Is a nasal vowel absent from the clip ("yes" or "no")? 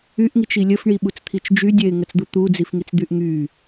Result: yes